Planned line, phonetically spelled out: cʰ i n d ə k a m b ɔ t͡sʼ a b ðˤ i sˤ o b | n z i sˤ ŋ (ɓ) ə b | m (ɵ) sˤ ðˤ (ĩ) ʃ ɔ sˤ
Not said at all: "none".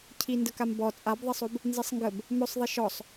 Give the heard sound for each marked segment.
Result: ɡ, ɵ, i

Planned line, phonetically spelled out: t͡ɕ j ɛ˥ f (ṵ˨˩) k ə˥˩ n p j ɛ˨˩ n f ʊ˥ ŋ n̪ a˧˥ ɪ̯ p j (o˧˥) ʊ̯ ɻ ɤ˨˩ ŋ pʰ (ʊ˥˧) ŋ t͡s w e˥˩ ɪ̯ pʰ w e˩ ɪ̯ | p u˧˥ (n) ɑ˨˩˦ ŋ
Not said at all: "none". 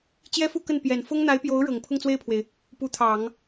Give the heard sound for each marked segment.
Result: u˥˧, o˧˥, ʊ˥˧, t̪ʰ

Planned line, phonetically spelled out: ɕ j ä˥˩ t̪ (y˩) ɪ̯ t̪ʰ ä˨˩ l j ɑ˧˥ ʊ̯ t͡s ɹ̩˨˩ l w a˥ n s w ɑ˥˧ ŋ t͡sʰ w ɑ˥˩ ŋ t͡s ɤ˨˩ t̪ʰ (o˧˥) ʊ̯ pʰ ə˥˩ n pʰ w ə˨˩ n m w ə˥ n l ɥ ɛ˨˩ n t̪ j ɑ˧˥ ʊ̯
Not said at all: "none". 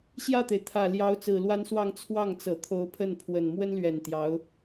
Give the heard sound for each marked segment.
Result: e˩, o˧˥

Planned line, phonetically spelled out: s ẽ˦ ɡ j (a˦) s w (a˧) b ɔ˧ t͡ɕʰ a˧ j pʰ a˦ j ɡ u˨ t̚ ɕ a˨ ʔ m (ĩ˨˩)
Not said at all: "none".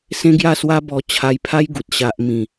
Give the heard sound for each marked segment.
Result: a˥˧, a˦, ĩ˨˩

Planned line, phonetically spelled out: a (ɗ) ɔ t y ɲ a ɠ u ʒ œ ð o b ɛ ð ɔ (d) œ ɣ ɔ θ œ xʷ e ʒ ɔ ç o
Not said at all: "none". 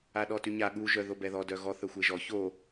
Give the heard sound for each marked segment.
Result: ɗ, d

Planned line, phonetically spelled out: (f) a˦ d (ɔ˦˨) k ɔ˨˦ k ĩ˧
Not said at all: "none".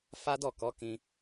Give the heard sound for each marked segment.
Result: f, ɔ˦˨

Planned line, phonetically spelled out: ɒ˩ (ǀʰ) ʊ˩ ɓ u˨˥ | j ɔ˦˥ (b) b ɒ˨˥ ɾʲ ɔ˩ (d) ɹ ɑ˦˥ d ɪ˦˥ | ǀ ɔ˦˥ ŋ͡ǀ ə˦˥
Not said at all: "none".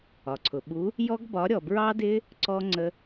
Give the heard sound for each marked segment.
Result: ǀʰ, ɡ, b

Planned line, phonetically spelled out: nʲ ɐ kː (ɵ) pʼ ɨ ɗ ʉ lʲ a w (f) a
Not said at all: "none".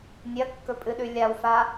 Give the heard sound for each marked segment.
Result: ɵ, f

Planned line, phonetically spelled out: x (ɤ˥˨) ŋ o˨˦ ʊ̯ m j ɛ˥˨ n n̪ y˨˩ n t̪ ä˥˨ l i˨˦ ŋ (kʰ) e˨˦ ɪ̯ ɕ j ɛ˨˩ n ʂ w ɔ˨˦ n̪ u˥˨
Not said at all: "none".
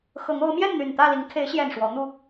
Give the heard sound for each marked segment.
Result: ɤ˨˦, kʰ

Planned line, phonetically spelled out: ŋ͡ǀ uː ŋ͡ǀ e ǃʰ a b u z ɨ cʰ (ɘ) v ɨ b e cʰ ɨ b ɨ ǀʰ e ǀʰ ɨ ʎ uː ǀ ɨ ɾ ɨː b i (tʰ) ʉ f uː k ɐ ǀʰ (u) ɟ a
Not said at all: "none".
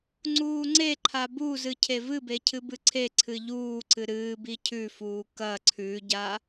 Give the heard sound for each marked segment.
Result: e, cʰ, ʉ

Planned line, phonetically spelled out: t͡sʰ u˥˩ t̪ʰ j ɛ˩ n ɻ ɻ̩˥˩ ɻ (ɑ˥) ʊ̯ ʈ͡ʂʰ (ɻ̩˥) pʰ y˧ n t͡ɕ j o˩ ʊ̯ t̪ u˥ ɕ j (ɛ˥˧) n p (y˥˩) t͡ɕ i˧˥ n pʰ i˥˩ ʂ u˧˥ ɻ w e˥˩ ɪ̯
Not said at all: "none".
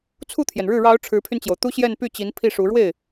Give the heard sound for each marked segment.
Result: ɑ˧˥, ɻ̩˧˥, ɛ˥˧, y˥˩

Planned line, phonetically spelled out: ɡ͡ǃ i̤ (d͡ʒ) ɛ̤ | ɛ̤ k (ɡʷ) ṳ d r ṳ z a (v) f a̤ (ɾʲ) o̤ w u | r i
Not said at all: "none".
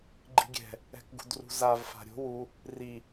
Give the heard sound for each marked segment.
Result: ɡʲ, ɡ, v, ɾʲ

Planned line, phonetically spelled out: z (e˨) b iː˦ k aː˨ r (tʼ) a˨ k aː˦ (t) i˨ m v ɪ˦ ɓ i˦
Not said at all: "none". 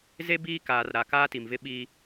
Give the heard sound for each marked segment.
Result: e˦, ɾ, t

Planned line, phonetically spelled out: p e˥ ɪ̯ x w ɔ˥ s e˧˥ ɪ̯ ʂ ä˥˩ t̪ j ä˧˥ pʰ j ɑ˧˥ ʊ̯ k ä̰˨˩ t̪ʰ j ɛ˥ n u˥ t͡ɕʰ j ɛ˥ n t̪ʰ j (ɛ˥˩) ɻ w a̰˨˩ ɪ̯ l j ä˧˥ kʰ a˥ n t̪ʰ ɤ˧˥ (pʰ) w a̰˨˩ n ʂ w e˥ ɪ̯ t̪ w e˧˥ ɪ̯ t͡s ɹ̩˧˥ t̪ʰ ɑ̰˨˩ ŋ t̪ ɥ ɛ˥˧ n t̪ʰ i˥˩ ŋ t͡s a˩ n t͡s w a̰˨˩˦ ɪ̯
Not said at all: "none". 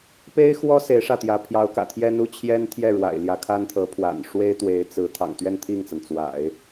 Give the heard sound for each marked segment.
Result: ɛ˥˩, pʰ

